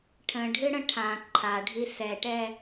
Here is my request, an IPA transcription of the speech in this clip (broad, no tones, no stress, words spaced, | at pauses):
ʈʰə̃ɖʱɨɽə̃ ʈʰã ǃʰaɖʱi sɛʈɛ